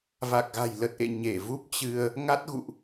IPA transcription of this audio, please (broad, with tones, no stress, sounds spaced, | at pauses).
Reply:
v a˨˩ k̚ ɣ a̤˨˩ j l ə˨˩ t̚ ʔ ḛ˧˨ ɲ e˧˩ v u˦˥ p̚ t͡ɕ ɨ˧ ə̯ | ŋ a˦˥ t̚ ɣ ṵ˧˨ ʔ